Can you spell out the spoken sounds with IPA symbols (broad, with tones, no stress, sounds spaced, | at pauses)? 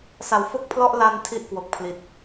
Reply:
s a˨˩ w f o˥˩ k̚ pʰ l ɔ˥˩ ʔ l a˧ n tʰ i˥˩ ʔ k w o˨˩ k̚ pʰ l i˨˩ t̚